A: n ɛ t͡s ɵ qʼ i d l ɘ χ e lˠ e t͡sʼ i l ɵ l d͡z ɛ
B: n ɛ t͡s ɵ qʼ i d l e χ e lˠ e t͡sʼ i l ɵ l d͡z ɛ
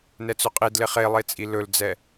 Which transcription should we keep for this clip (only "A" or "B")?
B